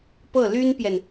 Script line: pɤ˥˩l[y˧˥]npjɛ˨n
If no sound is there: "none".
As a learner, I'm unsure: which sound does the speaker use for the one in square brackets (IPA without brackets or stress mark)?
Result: y˥